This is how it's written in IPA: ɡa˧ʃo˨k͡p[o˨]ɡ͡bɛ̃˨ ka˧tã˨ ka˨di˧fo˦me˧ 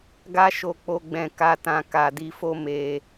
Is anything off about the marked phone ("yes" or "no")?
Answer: no